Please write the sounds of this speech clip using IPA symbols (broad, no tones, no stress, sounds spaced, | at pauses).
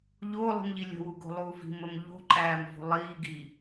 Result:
ʎ o lˠ i̤ m ʎ i lʲ ə̤ w u ɡ o̤ lˠ uː v i̤ m ə m ʎ o̤ ǃʼ æː m v o̤ lˠ iː ɡ iː